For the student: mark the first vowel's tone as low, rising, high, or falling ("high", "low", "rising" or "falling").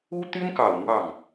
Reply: high